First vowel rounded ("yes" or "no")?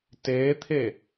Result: no